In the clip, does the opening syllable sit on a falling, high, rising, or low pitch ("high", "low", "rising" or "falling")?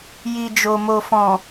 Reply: low